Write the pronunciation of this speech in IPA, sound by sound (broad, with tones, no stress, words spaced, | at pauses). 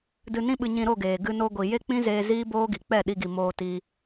dɨ˧nĩ˦ɓɨ˧ ɲĩ˧ ɾo˦˨ɡeː˨ ɡɨ˧ no˧ɡʷi˨ je˦k͡pĩ˦zeː˧ ziː˦boː˦ɡi˨ k͡pɛ˦˨ɗi˧ɡi˨ moː˧ tiː˧